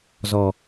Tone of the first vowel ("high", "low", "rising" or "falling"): low